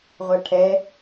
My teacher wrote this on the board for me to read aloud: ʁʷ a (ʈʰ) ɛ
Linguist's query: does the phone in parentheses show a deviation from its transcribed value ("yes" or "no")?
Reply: no